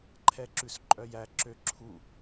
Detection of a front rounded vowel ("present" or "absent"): present